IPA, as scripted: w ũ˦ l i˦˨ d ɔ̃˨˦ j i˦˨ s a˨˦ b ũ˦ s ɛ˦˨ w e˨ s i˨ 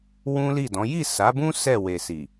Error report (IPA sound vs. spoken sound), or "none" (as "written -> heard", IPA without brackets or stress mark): none